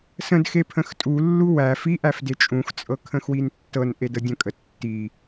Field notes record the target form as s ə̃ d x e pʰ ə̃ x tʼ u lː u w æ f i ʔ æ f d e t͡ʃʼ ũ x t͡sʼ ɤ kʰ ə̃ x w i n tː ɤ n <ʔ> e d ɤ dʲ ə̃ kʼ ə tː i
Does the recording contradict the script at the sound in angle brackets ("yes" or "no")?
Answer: no